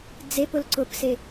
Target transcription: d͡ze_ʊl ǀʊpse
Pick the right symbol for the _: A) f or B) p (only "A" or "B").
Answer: B